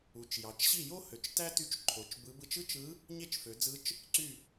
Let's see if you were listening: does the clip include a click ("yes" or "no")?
yes